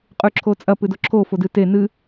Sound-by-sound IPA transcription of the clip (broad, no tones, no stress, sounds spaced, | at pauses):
qʼ ʉ ǁʰ o t͡sʼ ɐ p ɨ d o ǁʰ o f o d ɨ t e n ɨ